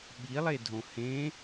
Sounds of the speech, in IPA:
ɓ i lˠ e dʱ õ h ẽ

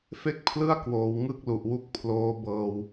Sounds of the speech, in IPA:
f e˥˩ k̚ pʰ l ɯ˥˩ a̯ k w oː˩˦ w ŋ ɯ˥˩ k̚ l u˨˩ ʔ w u˦˥ k̚ pʰ l oː˦˥ b ɤː˧ w

